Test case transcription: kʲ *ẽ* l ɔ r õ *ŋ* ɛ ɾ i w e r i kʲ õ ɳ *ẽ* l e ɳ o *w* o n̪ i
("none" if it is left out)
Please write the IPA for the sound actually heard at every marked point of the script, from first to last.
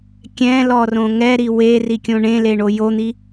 ɛ̃, ŋ, ẽ, j

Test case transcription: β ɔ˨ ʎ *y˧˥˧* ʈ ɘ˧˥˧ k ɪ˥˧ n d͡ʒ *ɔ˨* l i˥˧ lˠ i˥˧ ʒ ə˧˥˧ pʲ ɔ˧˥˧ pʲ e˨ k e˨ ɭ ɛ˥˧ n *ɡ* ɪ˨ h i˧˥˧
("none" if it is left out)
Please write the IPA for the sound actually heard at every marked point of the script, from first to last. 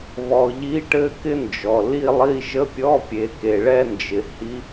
i˧˥˧, ɔ˨, d͡ʒ

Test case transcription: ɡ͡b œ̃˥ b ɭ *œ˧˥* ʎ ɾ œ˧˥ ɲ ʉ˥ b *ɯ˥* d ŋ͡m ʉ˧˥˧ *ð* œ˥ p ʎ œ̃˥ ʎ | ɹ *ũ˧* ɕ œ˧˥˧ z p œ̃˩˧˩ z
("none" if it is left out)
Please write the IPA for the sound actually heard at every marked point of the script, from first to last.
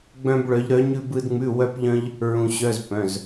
œ˧˥, ɯ˥, w, ũ˧

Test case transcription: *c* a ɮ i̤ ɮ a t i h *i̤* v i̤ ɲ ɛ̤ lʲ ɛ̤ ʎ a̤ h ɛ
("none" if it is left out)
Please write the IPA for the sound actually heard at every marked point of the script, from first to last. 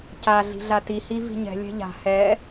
c, i

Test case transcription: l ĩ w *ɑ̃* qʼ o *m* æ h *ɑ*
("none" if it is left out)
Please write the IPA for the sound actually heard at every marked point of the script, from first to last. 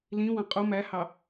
ɑ̃, m, ɑ

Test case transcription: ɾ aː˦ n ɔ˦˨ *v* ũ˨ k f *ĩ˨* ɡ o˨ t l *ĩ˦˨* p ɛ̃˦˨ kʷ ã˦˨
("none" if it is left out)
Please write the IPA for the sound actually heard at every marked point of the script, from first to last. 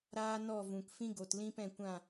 v, ĩ˦, ĩ˦

